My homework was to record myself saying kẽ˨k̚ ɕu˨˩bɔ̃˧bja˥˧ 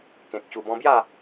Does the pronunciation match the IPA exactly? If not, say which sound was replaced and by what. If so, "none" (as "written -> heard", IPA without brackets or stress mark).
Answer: none